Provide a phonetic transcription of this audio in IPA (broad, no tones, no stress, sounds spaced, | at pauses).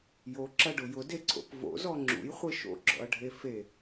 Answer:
j o ǁ ɐ ɖ ʊ j ʊ d e ǀʰ o̰ p v o̰ z ɔ ŋ͡ǁ ṵ j χʷ e ʃ o̰ ɡ͡ǁ ɔ̰ ɐ̯ ɖʱ e f e